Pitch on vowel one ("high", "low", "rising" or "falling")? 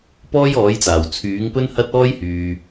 high